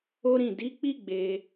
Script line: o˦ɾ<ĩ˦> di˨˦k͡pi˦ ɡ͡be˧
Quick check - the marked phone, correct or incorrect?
incorrect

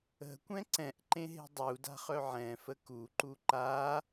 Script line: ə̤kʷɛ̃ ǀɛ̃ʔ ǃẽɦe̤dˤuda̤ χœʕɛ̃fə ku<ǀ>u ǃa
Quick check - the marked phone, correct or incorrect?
incorrect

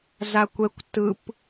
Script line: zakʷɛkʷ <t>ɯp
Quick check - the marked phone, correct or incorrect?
correct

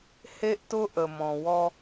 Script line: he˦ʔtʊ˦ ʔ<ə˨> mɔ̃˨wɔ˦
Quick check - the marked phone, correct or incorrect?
correct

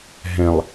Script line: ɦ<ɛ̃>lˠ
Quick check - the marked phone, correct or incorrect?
correct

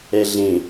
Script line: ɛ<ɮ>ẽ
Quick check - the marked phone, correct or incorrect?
correct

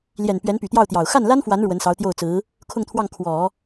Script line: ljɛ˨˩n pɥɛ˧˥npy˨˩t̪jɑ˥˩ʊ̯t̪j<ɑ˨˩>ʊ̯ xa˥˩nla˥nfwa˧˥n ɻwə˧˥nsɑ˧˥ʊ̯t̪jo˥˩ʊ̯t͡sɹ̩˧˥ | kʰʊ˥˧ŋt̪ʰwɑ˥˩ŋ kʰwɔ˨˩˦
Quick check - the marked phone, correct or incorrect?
correct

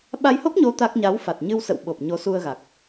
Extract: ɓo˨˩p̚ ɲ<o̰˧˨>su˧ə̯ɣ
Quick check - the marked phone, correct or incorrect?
incorrect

